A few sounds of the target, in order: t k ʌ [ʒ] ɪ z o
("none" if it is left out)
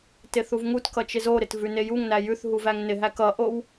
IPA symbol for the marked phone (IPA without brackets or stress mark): t͡ʃ